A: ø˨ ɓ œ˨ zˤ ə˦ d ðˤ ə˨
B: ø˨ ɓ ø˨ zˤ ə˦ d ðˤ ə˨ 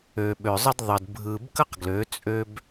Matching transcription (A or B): B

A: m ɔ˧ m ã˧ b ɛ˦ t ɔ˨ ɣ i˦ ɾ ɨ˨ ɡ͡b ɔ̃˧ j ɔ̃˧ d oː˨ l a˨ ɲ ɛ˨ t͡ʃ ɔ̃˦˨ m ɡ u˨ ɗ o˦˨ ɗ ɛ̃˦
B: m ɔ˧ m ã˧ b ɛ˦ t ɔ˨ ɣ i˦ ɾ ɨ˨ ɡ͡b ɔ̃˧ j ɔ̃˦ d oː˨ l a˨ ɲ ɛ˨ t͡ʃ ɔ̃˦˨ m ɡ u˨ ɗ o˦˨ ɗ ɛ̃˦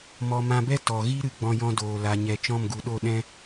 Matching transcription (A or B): A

